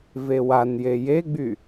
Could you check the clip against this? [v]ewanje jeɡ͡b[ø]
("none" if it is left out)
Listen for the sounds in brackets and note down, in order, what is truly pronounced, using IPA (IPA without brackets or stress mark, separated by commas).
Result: v, y